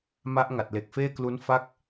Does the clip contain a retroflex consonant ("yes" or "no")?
no